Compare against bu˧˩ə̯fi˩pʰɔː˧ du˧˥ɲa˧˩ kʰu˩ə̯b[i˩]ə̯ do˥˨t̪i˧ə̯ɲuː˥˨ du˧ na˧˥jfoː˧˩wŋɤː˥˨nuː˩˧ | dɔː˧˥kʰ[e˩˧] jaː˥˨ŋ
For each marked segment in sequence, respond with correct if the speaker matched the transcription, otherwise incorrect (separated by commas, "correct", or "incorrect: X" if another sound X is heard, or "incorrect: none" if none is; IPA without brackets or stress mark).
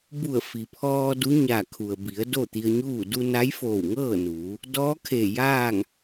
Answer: incorrect: i˩˧, incorrect: e˧˩